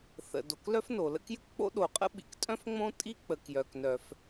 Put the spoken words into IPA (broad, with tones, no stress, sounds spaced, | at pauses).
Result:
θ ə̰˩ d o˩ k l œ˥ f n o˩ l ə̰˥ k j ɨ˥ k k͡p o̰˥ ɗ o˩ qʼ ə̰˥ ɓ ḭ˩ k tʼ œ̃˥ f ŋ͡m õ˥ tʼ i˥ k͡p ə˩ k j œ˩ k n œ˩ f